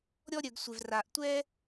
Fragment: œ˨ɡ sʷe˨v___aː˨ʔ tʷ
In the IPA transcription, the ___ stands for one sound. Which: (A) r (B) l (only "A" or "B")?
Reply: A